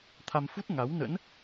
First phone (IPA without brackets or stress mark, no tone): t̪ʰ